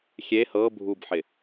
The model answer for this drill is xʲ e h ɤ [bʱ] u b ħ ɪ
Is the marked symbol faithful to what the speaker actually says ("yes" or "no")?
yes